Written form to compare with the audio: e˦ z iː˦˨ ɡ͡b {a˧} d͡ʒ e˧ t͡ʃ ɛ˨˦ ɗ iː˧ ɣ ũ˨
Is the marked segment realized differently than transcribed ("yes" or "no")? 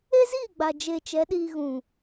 yes